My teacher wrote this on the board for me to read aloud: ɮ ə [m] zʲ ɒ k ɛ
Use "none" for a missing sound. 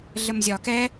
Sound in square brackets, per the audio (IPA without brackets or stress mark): m